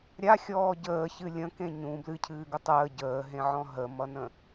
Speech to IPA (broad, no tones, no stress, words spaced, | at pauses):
ɾʲa xʲɔːɟəːçɨ lʲə̃ kẽɲũ blɨcʰɨːɡʊ tˤəː ɟəːɦẽʕɔ̃ ɦəmʌnə̃